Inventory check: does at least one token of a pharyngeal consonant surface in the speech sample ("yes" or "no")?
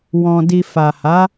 no